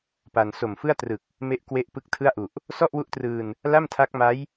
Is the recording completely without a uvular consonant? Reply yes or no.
yes